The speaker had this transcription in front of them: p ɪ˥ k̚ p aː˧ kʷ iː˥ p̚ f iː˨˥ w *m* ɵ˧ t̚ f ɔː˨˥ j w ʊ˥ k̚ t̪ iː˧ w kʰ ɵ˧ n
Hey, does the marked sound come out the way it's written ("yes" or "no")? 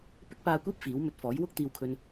yes